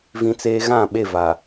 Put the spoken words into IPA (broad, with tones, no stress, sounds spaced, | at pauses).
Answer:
v ĩ˦ t͡s eː˦ ɣ ã˦˨ ɓ e˦˨ v a˨